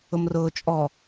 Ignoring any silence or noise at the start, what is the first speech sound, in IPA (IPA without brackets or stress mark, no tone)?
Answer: ʊ